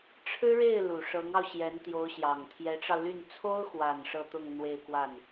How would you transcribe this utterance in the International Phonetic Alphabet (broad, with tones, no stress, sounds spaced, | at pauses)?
ʈ͡ʂʰ ɻ̩˥ ɻ e˥˩ ɪ̯ l u˨˩ ʂ ɤ˧˥ ŋ ɑ˧ ʊ̯ ɕ j ɛ˧˥ n t̪ j o˧˥ ʊ̯ ɕ j ɑ˨˩ ŋ t̪ʰ j ɛ˧˥ ʈ͡ʂ ɑ˧ ʊ̯ l y˥˩ n t͡sʰ o˥ ʊ̯ x w a˨˩ n ʂ ɤ˥˧ t̪ ʊ˥˧ ŋ n̪ w e˥˧ ɪ̯ k w a˥˩ n